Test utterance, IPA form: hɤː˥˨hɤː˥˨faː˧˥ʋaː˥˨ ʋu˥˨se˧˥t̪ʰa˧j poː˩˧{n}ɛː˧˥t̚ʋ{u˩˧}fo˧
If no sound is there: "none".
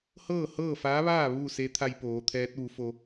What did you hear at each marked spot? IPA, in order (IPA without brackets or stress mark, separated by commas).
t̪ʰ, u˩˧